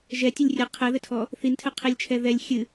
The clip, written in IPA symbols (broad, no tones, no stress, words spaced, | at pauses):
ʒɛtʲɨlʲ rʲɘ qʰɛðɘtʰɔ | θintʰɘqʰilʲt͡ʃʰɛ ðɛlʲ xʲɨ